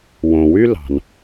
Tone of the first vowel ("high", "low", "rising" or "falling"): low